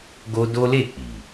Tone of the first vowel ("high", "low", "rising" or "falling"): high